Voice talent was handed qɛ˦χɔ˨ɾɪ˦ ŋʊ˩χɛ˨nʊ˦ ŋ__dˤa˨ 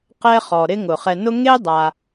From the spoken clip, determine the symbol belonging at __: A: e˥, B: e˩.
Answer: A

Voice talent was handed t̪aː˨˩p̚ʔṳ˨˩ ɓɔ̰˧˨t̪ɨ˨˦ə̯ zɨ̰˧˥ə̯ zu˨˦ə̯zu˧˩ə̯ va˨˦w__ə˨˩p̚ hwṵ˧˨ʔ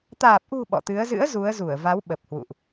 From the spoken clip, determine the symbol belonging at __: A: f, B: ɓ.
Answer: B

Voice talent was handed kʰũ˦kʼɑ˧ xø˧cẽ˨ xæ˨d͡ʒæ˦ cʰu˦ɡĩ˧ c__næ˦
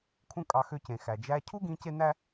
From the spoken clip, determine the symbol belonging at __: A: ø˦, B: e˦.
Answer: B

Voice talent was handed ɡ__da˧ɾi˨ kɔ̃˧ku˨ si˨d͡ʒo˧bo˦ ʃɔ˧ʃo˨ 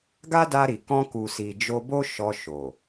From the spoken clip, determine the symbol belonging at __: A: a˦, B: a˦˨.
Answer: A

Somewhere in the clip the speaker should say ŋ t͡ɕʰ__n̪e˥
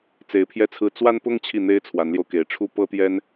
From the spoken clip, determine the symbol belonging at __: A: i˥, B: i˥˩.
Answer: B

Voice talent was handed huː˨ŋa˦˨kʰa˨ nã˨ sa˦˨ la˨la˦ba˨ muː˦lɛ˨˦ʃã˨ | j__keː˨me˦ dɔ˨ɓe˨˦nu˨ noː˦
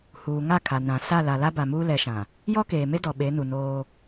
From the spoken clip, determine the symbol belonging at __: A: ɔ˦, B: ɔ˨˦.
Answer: A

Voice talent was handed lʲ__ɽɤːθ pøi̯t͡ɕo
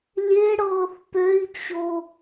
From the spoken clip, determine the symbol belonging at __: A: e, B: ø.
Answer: A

